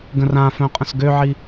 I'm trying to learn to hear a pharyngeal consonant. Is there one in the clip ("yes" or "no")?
yes